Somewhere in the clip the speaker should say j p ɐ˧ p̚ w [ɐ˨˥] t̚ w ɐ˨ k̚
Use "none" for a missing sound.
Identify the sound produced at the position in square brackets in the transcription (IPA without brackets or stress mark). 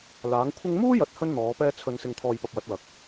ɐ˨˥